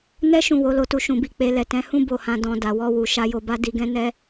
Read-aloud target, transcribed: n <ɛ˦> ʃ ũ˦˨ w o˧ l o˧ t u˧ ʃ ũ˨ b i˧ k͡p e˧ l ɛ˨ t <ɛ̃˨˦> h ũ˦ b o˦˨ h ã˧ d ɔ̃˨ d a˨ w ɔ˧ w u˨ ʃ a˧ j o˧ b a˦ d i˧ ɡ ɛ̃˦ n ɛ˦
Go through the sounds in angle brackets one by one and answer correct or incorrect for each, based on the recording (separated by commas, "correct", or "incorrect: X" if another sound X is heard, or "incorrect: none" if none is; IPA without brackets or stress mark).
correct, correct